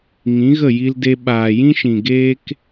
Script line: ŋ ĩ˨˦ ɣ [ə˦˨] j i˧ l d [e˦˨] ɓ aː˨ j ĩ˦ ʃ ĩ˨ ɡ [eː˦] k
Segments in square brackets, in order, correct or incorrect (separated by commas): correct, incorrect, correct